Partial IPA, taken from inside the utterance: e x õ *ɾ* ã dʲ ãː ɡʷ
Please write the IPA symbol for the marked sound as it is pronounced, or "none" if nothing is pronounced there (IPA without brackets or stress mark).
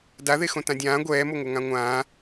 t